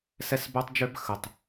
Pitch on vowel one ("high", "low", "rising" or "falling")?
high